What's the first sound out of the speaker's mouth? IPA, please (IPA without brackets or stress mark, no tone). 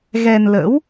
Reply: ɣ